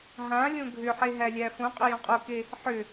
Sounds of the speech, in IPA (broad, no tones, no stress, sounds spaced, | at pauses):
ɦ ã lʲ õ ɡʱ ʏ ħ e ɦ æ lʲ æ f õ qʼ ʏ j õ qʼ o k e | ħ ʏ